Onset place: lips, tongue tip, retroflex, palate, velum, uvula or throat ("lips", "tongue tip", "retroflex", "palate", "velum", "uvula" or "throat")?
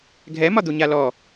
velum